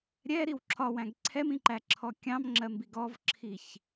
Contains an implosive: no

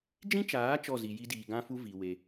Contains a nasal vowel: yes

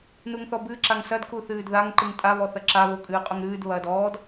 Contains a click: yes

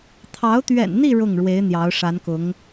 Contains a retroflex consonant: yes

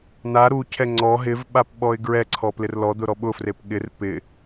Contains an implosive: yes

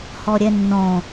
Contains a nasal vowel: yes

